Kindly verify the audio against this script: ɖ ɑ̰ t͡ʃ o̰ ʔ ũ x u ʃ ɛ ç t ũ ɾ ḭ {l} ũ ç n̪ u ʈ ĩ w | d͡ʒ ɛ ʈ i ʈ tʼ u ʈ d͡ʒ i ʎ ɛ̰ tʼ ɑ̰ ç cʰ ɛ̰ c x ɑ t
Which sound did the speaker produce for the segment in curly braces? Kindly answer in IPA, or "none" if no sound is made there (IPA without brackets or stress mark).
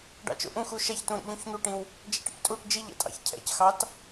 ʎ